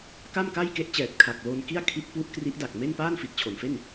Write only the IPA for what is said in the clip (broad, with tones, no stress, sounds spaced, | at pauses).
k a˥˩ m k a˥˩ j k e˦˥ ʔ t͡ɕ ɛː˨˩ t̚ kʰ a˨˩ k̚ l o˧ n k i˥˩ a̯ kʰ i˦˥ t̚ p u˦˥ ʔ k r i˦˥ ʔ d a˨˩ k̚ m e˥˩ n p aː˥˩ n f i˨˩ t̚ t͡ɕʰ o˨˩ n f e˥˩ n